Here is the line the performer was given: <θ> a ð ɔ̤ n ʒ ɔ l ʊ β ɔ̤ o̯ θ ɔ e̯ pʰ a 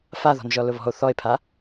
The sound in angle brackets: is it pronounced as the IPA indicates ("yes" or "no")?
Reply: no